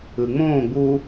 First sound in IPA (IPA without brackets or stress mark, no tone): ɯ